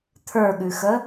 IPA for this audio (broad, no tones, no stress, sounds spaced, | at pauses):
t̪ʰ ə˞ ɠ ʉ x ə